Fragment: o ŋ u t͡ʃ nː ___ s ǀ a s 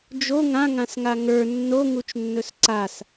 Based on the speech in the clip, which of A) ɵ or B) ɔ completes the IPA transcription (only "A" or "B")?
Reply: A